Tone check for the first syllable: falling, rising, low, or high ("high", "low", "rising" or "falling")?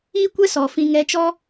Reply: high